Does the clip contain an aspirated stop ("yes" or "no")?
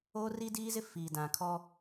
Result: yes